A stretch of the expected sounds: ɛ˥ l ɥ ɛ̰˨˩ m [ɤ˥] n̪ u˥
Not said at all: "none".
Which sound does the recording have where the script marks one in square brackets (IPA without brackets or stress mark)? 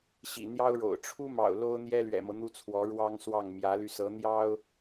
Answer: ɤ˦